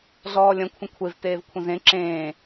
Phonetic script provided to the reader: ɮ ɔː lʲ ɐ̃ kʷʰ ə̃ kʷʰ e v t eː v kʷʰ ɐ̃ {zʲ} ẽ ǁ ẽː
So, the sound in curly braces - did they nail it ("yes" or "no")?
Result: no